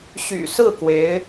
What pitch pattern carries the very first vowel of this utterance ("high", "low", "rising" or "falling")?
low